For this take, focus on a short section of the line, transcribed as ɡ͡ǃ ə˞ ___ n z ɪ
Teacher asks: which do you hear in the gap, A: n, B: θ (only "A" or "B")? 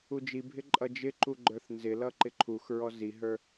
B